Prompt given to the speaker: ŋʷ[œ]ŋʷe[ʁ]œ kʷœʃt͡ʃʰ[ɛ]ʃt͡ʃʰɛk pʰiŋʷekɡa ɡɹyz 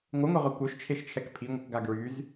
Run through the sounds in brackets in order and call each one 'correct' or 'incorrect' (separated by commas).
correct, correct, incorrect